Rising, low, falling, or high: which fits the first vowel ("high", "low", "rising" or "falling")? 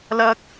high